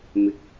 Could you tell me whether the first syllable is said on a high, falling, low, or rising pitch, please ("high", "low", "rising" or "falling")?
rising